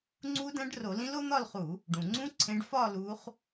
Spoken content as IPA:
ŋ͡ǀ u˦˥ d æ̃˦˥ ɖ r o˧˩˧ l ĩ˦˥ l o˦˥ n̪ ɒ˥˧ l χ u˧˩˧ | ɖ ũ˩ ŋ͡ǀ ũ˦˥ ǀʰ ẽ˨˦ ɖ f ɒ˥˧ l u˨˦ χ

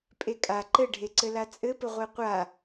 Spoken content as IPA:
pʼ e kʼ a ǃ ɘ ɖʱ e ǀ ɘ l a t͡sʼ ɘ p ɘ ʁʷ e qʷ a

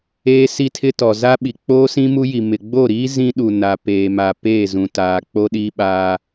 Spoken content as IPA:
eː˦ s i˦ tʰ ɪ˦ t ɔ˨ z a˦ ɓ i˨ k͡p oː˦ s ĩ˦ m u˦ j i˨ m ɪ˨ ɡ͡b o˦˨ ɾ iː˦ z ĩ˦ ɗ u˨ n a˨ p eː˨ m a˨ p eː˦˨ z ũ˨ t aː˨ k͡p o˦ ɗ iː˦ ɓ aː˦

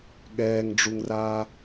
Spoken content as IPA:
ɠ ɛː ŋ ɖ͡ʐ u ŋ r aː

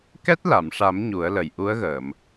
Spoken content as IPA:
k ɛ˦˥ t̚ l a˨˩˨ m ʂ a˨˩˦ m ɲ u˨˩˦ ə̯ l ə˨˩ j ʔ u˧˥ ə̯ ɣ əː˨˩˨ m

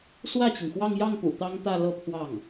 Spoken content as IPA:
s w ä˥˩ t͡ɕ i˩ ŋ x w ɑ˥˧ ŋ j ɑ˥˩ ŋ p ṵ˨˩ t̪ ɑ˥ ŋ t̪ ä˥˧ l ɤ˥˧ pʰ w ɑ˥˩ ŋ

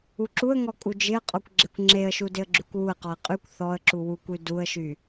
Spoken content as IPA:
u ǁ u ə̯ ŋ ɔ kʼ u d͡ʒ ɪ ə̯ qʼ ɔ kʷ ɡ͡ǁ e kʷ ŋ͡ǁ e ə̯ ʃ u d ɪ ə̯ ɡ͡ǁ y kʷ w u ə̯ q ɔ ə̯ qʼ y kʷ θ ɔ ə̯ ǁ u w u kʷ y d u ə̯ ʃ y

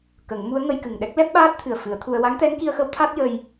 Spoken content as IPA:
k ə˨˩˦ ŋ m u˧˥ ə̯ ŋ ə˧ j k ɨ˨˩ ŋ ɗ ɛ˦˥ k̚ l ɛ˦˥ p̚ ɓ aː˦˥ t̚ t̪ʰ ɨ˨˩ ə̯ f ɨ˨˩˦ ə̯ t̪ʰ u˧ ə̯ w a˧˥ ŋ t̪ ɛ˧˥ ŋ k i˧ ə̯ x ə˧˥ w t̪ʰ a˦˥ t̚ j ə˧ j

